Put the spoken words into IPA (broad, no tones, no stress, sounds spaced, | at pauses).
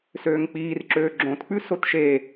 s øː ŋ k͡p iː r ǁ øː ɡ͡ǁ õ t k͡p ʉ s o t ʃ e